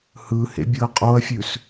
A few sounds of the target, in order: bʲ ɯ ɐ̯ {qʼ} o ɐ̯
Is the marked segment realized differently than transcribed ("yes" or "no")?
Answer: no